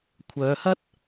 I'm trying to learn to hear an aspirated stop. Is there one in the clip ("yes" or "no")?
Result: yes